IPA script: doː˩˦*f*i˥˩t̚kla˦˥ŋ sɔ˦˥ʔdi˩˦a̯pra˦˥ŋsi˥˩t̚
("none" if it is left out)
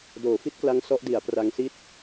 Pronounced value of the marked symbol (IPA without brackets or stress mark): f